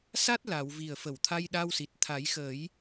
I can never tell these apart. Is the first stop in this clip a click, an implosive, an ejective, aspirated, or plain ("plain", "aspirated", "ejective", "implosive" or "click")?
plain